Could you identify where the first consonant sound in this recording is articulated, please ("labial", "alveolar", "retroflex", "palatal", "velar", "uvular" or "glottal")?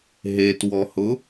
glottal